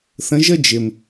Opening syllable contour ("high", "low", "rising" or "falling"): rising